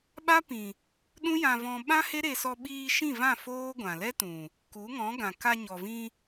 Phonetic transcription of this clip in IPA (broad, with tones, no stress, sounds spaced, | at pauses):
ɓ a˦ p ĩ˨ | ɗ ũ˦ j ã˧ v ɔ̃˧ ɓ ã˦ h e˦ ɾ e˧ s ɔ˧ ɓ iː˧ ʃ ĩ˦˨ v ã˦˨ f oː˦ ɡʷ ã˨ l ɛ˦ t ũ˨ | k u˨˦ ŋ ɔ̃˨˦ ɡ ã˨ k a˧ ɲ ɔ˨ v ĩ˧